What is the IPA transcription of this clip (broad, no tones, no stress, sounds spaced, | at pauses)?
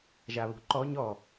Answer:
ʒ a β ṳ ǃ ɔ ɲ ɔ